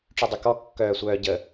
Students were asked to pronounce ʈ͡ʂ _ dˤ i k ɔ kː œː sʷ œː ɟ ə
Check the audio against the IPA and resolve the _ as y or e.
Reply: y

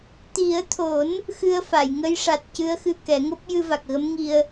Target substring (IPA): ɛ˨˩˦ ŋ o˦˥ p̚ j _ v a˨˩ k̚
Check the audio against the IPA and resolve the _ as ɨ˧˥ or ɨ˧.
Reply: ɨ˧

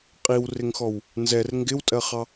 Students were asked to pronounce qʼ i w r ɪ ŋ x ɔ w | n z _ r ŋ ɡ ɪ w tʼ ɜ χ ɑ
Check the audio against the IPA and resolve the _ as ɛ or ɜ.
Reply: ɛ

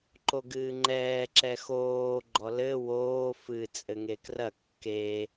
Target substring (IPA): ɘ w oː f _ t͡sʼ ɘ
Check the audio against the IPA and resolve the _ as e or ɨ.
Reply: ɨ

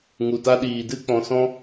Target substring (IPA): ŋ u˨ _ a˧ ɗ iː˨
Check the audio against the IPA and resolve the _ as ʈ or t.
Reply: t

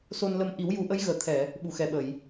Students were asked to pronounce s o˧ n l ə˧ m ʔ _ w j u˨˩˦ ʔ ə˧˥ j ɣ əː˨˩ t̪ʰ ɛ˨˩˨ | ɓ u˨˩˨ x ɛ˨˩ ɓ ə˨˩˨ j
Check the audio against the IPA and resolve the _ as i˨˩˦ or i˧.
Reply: i˨˩˦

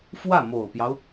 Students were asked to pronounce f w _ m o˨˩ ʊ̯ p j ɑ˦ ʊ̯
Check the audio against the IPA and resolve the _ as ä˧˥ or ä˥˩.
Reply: ä˥˩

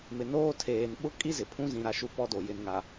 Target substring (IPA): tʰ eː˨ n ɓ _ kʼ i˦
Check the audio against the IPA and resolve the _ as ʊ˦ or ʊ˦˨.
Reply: ʊ˦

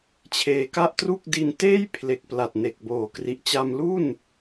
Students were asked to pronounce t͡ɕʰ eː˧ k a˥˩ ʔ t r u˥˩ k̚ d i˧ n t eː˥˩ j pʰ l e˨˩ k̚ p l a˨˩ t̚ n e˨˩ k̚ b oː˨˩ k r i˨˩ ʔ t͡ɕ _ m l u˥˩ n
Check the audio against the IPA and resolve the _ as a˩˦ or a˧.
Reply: a˧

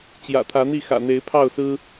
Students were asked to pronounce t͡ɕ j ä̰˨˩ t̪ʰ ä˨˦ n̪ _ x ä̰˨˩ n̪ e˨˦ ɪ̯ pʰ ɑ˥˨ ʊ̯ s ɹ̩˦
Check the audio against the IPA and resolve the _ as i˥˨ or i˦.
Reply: i˥˨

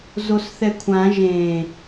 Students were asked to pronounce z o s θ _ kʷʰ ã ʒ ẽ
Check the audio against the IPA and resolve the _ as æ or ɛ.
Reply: ɛ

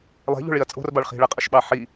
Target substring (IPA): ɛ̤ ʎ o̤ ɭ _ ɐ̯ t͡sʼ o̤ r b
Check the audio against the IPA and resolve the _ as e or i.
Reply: i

